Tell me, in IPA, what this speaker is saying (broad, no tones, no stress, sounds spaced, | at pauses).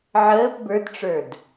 ʕ əː p b ə˞ d ʈ͡ʂ ə˞ d